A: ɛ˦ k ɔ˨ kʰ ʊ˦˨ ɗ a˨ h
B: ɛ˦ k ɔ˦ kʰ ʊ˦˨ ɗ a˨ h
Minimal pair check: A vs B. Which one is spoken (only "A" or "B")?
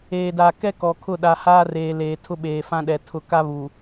A